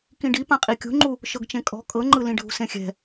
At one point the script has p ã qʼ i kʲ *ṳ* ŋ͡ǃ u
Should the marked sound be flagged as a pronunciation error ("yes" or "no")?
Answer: no